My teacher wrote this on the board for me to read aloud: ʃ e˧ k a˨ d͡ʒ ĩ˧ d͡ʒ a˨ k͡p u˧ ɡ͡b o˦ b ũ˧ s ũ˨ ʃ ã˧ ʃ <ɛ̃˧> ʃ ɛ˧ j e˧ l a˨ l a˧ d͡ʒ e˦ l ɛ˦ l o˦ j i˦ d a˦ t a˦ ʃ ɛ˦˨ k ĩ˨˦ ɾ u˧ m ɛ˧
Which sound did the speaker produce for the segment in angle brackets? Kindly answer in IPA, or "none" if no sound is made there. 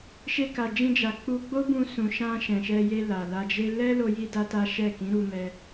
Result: ɛ̃˨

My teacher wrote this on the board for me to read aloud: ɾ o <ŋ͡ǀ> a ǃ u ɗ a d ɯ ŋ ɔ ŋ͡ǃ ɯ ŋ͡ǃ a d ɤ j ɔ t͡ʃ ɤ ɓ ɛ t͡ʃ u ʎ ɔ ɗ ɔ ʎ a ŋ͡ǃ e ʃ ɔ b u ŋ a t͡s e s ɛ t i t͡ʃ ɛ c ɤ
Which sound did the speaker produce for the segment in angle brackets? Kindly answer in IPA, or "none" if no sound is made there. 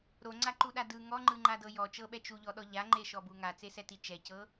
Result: ŋ͡ǀ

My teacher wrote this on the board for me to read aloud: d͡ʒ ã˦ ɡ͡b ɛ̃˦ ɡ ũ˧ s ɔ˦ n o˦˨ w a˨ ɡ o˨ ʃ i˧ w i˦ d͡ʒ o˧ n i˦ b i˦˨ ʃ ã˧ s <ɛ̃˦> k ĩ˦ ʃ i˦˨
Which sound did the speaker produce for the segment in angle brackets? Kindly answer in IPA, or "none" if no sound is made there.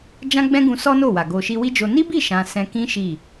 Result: ɛ̃˧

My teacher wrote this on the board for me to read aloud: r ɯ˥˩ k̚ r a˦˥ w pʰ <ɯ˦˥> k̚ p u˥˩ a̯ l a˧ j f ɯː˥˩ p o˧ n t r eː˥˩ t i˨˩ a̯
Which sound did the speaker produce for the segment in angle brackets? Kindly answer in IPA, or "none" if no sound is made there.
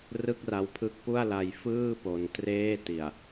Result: ɯ˦˥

